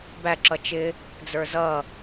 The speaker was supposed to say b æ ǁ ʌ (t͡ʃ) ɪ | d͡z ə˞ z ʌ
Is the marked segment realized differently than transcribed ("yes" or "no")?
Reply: no